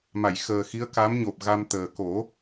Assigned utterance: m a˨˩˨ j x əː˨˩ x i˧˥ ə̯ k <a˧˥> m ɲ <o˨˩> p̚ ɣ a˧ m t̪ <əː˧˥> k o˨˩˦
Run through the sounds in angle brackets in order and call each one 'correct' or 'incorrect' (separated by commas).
correct, correct, incorrect